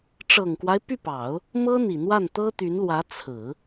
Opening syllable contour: low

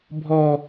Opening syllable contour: high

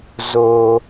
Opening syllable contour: high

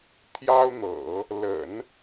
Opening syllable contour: high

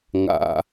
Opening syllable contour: low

